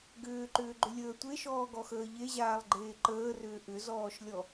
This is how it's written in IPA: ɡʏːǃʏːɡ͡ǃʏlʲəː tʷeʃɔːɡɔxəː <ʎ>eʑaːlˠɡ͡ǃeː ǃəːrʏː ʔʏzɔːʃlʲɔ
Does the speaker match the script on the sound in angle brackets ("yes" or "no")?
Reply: yes